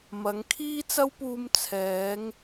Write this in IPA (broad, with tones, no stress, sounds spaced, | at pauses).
m ɐ˨˧ ŋ kʰ iː˥ t͡s ɐ˥ w p uː˧ m t͡sʰ ɛː˨˧ ŋ